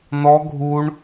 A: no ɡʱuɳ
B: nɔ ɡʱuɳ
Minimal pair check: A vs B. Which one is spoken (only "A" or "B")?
B